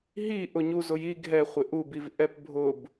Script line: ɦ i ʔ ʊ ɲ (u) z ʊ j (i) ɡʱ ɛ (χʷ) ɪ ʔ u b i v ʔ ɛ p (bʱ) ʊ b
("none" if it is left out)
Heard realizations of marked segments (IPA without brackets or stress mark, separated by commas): u, i, χʷ, bʱ